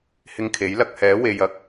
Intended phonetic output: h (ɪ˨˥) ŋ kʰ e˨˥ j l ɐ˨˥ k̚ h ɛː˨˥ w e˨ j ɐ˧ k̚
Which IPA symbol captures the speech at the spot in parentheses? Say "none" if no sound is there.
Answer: ɪ˧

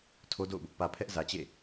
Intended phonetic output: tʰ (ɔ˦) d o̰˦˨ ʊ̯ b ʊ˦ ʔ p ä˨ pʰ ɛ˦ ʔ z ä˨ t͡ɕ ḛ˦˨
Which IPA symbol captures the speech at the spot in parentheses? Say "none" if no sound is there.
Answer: o˦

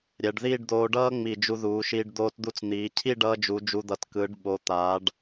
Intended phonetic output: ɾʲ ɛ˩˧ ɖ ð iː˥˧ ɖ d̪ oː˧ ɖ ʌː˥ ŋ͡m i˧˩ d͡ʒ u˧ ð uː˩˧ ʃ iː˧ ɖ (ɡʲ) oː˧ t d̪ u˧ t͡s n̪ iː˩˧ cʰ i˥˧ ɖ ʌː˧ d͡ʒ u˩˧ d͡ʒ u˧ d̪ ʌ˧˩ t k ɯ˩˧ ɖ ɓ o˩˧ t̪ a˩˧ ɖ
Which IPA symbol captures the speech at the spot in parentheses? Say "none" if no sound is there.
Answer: d̪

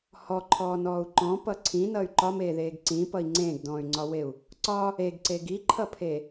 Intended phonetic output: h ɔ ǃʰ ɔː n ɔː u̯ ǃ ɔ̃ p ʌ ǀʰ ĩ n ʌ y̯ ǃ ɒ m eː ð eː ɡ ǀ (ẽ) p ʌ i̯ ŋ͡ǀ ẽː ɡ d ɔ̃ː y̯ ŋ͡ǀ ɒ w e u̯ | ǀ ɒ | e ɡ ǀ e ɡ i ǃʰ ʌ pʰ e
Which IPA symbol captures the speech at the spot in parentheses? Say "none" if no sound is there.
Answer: ĩ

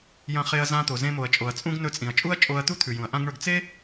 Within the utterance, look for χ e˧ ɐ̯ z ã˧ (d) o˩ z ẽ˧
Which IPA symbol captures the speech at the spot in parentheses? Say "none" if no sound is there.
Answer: t̪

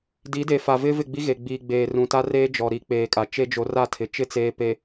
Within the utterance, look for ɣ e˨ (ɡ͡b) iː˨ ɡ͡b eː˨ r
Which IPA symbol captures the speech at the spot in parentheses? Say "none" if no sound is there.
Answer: ɡ͡b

